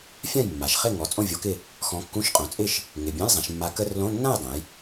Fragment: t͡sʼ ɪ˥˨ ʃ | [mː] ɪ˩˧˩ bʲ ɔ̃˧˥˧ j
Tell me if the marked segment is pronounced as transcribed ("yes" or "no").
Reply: no